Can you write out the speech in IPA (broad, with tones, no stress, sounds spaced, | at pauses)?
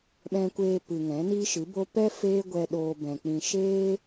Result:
ɓ ɛ̃˧ kʷ eː˧ p ɨ˨ ŋ ɛ̃˨˦ n i˦ ʃ ɨ˨˦ b o˦ p ɛ˦ f eː˦ ɡʷ ɛ˧ ɗ oː˧ b ɛ̃˨ k͡p ĩ˧ ʃ eː˦